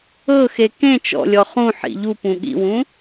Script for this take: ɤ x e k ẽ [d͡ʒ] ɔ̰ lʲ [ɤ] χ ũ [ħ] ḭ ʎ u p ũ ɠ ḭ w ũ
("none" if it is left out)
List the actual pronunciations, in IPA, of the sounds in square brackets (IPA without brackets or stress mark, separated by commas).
t͡ʃ, ɔ, ħ